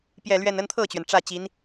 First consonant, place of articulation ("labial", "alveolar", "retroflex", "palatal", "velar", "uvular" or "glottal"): labial